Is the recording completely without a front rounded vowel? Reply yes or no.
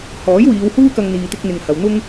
yes